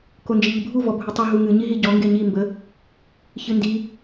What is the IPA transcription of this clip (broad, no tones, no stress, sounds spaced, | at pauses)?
k o n d͡ʒ i ʎ ɨ bʱ u v ɔ bʱ u tˤ ɨ ɦ u ŋ ɨ ɲ i ɦ i ɟ ɔ ŋ ɡ e ɲ i m b ə | ç ɨ n d i